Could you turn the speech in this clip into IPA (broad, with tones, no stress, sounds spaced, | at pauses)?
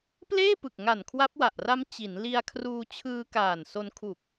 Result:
p l eː˥˩ p ɯ˨˩ k̚ ŋ a˨˩ n kʰ w a˦˥ p̚ w a˨˩ ʔ r a˦˥ m t͡ɕ i˩˦ n l i˧ a̯ kʰ r uː˧ t͡ɕʰ ɯː˧ k aː˨˩ n s o˧ n kʰ u˨˩ k̚